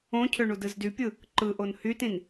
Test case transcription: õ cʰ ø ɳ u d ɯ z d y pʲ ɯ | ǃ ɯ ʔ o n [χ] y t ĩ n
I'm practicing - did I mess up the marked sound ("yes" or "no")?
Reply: yes